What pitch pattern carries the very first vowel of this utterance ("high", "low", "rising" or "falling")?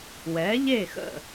rising